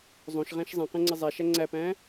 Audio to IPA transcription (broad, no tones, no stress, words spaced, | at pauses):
zˤõʃʁæ̃ʃ zˤæ̃qɛ̃ŋ͡ǀɛ zˤæʃæ ŋ͡ǀæpæ̃